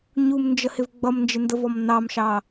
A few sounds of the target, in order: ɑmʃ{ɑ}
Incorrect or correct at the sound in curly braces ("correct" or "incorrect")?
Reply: correct